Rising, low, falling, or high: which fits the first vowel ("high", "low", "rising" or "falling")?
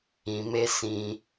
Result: low